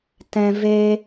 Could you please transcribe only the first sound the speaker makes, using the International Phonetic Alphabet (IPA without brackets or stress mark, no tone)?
t